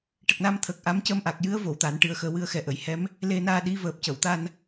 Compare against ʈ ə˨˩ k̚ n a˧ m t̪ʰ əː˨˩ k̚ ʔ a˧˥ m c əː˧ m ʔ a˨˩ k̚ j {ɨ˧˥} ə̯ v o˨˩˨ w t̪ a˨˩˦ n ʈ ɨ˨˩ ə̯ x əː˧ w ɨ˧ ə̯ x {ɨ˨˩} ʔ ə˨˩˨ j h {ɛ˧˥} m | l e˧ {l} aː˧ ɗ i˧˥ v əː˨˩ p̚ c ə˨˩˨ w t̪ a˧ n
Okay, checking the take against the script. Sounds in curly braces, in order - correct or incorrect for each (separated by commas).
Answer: correct, incorrect, correct, incorrect